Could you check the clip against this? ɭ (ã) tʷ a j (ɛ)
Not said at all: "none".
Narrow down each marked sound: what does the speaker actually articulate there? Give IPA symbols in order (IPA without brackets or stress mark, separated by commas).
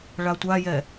a, ɛ